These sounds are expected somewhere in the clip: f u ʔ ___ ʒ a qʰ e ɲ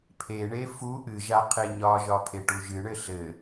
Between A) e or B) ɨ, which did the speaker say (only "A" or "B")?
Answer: B